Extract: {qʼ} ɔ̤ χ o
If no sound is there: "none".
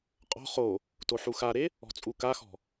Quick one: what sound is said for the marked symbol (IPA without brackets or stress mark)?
qʼ